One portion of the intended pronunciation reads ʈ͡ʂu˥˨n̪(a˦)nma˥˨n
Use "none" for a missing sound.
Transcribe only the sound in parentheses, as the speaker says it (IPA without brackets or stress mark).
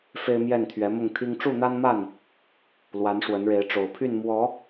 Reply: a˦